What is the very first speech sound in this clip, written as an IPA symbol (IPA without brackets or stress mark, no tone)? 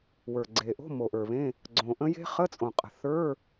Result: w